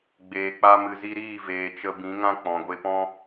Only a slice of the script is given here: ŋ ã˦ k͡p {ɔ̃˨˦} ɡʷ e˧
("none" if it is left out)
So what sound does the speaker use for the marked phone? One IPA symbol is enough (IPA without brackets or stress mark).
ɔ̃˨